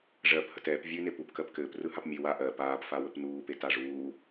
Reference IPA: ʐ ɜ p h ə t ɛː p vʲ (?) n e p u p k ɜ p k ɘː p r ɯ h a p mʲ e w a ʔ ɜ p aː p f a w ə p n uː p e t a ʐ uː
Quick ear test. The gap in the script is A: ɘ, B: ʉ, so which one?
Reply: B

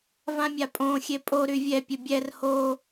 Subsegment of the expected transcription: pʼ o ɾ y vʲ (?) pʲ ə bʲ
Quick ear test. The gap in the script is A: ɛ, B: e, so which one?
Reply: A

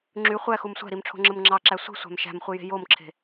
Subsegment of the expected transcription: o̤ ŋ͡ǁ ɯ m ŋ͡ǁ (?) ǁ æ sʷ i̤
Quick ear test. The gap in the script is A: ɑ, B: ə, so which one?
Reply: A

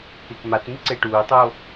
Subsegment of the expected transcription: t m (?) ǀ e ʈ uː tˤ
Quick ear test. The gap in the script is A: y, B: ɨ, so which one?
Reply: B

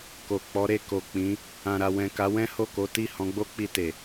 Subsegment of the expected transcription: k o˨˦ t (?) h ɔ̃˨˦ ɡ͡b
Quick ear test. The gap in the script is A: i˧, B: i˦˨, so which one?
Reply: B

